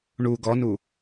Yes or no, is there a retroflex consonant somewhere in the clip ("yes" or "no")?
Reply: yes